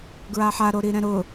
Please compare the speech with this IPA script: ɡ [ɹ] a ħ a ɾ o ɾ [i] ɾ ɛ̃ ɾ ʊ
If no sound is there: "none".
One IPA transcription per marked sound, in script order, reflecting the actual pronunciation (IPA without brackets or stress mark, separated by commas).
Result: ɹ, i